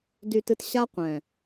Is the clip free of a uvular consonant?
no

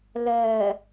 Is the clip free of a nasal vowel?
yes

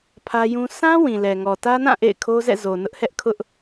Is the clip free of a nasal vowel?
no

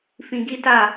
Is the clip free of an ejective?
yes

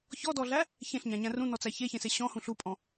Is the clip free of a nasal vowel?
no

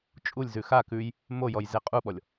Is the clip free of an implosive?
no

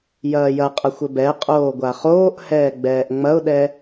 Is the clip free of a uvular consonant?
no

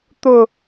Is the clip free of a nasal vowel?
yes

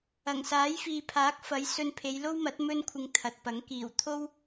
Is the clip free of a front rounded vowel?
yes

